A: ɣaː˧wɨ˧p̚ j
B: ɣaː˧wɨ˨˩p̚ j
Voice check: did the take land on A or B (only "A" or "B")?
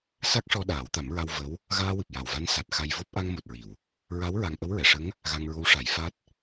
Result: B